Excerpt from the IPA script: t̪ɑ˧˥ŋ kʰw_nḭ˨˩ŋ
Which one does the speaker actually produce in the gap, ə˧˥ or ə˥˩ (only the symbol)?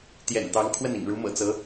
ə˥˩